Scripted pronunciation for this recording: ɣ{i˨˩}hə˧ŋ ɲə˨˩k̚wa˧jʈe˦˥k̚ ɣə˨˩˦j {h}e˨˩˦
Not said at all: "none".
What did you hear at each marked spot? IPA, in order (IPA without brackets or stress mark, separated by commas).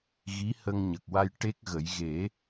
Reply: i˧˥, ɣ